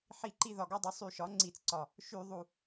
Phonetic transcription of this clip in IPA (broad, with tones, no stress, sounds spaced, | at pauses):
ħ i˧˩˧ ǃ i˧ ð ɒ˨˩ ɡ ɒ˧ dˤ y˩˥ sˤ y˧˩˧ ʃ ɒ˩˥ ŋ͡ǀ i˧˩˧ t͡s ǀ ɒ˨˩ | ʃ y˧˩˧ ðˤ u˨˩